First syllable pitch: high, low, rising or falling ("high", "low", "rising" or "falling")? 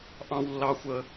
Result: high